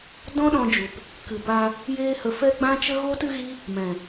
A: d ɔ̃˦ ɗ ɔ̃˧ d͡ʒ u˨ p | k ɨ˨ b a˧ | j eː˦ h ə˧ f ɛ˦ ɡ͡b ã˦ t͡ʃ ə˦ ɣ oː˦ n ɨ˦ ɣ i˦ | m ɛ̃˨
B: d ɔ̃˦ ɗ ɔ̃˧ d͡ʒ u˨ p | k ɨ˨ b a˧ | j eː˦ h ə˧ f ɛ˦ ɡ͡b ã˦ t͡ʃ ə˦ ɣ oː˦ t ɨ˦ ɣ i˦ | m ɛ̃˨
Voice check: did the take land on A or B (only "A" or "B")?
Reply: B